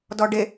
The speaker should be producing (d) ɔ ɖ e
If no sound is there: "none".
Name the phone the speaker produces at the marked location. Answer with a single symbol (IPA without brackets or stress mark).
d